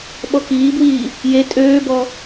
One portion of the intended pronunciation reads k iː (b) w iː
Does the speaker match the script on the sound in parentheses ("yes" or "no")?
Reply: yes